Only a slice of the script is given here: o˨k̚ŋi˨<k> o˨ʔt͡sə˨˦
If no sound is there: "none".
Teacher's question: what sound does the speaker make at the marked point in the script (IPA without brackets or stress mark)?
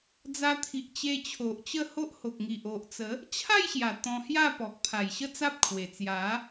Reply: ʔ